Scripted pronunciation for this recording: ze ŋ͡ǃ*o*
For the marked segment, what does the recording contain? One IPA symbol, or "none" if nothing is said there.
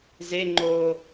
o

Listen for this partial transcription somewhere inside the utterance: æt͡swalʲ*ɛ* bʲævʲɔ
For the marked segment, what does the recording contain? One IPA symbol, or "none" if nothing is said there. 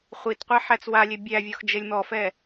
e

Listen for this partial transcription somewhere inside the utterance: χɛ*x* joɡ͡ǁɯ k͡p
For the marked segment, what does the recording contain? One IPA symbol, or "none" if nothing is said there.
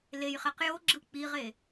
q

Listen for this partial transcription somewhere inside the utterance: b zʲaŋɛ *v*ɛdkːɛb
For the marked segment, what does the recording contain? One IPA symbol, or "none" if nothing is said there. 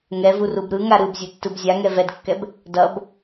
v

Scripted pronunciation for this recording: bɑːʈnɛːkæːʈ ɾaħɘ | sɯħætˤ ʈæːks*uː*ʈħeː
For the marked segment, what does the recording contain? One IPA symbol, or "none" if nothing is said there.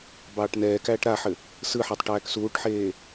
uː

